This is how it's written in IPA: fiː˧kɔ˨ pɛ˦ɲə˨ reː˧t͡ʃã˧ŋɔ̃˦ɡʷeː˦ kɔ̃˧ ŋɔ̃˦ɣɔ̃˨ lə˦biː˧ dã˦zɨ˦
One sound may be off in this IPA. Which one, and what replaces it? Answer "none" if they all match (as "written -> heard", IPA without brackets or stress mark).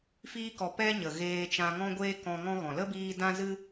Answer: r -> ɣ